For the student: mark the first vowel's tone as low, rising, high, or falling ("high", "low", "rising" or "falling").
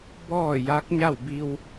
falling